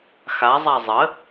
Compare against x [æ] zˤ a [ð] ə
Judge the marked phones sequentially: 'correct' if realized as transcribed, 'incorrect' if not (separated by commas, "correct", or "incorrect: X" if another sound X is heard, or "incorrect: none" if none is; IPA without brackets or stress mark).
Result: incorrect: a, incorrect: zˤ